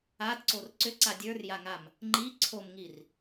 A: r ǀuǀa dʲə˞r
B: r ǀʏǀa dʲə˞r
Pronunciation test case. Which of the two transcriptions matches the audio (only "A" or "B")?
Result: B